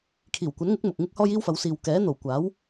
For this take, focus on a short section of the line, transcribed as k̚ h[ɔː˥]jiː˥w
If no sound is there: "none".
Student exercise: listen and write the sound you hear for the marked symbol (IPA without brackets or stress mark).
ɔː˥